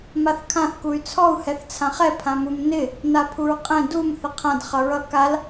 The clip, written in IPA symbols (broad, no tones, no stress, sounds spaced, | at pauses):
m a θ kʰ ã θ k u y̯ t͡sʰ ɔ u̯ h ɛ θ t͡sʰ ã χ ɛ pʰ ã m u m n ɪ | n a pʰ u ɹ qʼ ɛ̃ d u m θ ɪ qʰ ã d χ ʌ ɹ ʌ k a l